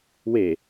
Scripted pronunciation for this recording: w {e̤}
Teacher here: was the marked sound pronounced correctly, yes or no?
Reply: no